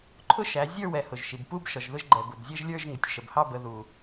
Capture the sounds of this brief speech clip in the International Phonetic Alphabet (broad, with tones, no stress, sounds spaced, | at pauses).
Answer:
ǃʰ ʊ˥˧ ʃ æ˩˧ zʲ ə˞˥˧ w ɛ˩ h ʊ˩ ʒ ʃ i˩ b p u˥˧ b ʃ ɔ˩ ʒ ð ʊ˥˧ ʒ ɡ͡ǃ ɛ˩ b ʊ˩ b zʲ ə˥˧ ʒ lʲ ə˞˥˧ ʒ ŋ ɪ˩ tʲ ʃ ə˩ b h ɑ˥˧ b ə˩˧ ð u˩